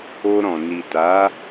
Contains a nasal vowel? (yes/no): yes